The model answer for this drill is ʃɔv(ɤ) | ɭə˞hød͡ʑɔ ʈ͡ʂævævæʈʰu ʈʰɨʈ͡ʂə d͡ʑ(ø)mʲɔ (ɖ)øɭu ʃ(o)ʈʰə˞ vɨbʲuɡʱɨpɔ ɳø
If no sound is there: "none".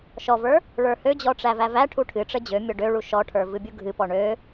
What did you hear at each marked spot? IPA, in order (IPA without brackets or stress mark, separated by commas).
ə˞, ø, ɖ, ɔ